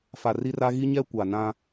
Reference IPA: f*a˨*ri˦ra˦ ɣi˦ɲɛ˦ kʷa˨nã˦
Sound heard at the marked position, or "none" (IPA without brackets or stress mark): a˨